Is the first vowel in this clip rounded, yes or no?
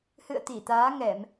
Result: no